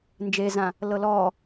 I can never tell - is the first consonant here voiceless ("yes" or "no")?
no